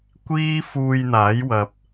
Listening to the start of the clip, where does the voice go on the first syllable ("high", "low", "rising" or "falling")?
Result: high